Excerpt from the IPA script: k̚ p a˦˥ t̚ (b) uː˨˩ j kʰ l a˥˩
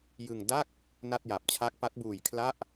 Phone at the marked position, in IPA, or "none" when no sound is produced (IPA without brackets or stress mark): b